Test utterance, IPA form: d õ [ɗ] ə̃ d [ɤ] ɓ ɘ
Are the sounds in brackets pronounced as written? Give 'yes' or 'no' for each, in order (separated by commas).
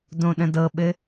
yes, yes